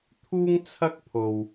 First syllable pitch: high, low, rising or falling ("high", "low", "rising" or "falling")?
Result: high